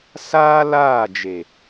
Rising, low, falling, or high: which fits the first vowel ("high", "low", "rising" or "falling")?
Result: high